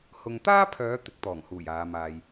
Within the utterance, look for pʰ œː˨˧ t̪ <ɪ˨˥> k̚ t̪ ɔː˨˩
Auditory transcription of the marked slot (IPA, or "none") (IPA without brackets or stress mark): ɪ˨˥